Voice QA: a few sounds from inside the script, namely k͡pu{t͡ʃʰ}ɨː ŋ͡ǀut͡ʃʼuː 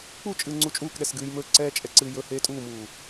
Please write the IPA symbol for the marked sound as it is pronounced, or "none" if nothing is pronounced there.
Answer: t͡ʃʼ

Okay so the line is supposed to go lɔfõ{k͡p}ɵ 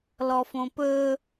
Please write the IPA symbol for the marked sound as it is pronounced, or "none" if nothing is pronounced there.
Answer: p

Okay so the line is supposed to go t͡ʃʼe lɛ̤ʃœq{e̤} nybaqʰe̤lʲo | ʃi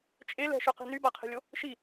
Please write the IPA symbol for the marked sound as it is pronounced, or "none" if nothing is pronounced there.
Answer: e̤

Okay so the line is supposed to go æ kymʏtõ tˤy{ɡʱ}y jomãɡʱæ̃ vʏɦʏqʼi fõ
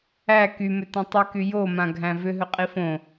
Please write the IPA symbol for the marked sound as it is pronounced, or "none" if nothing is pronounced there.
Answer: k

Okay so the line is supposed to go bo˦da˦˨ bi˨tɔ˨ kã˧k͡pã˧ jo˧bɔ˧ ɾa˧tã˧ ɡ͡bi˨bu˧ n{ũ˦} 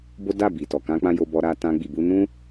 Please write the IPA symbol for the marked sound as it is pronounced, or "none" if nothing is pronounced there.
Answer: ũ˦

